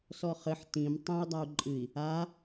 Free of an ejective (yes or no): no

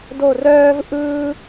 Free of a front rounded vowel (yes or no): no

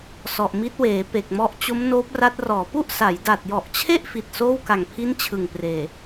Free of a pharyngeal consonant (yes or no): yes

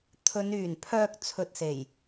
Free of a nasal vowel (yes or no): yes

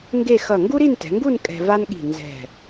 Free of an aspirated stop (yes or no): yes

